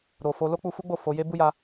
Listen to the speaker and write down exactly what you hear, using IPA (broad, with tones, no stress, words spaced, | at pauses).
ɾo˨fo˧ lo˦k͡pu˧fu˦ɡ͡bo˦˨ fo˨˦ je˦bu˦ja˧